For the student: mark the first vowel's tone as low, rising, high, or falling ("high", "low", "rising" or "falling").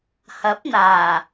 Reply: rising